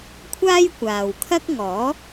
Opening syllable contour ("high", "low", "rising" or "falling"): high